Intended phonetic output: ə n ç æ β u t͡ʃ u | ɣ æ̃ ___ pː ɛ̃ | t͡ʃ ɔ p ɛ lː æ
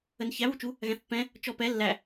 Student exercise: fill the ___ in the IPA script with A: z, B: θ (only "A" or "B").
B